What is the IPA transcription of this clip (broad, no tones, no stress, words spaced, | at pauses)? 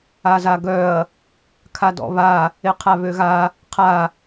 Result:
azaɡœɐ̯ | kʰadɔ̰βa | eqʰaβøɣa | qʰa